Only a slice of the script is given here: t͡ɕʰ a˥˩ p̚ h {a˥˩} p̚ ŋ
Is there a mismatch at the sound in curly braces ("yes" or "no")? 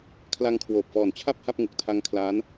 no